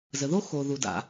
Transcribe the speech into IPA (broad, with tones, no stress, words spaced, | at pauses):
zə˩ðo˥ xo˩ðu˩da̰˩